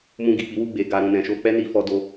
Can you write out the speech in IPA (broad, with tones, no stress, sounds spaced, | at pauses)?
m ũ˧ ɡ i˨ k͡p i˨˦ w u˧ ɡ͡b e˨ ɡ a˧ ɾ ũ˧ n ɛ̃˨ ʃ o˧ k͡p ɛ˦ n i˧ f ɔ˧ d o˧